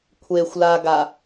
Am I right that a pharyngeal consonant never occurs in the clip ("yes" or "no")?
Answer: yes